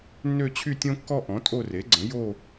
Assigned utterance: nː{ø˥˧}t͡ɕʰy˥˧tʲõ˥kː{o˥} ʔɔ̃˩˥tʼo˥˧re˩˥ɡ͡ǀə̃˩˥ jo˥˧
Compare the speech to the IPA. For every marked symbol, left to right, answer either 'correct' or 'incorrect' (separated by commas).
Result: correct, incorrect